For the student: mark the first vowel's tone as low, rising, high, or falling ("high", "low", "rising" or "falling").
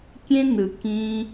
high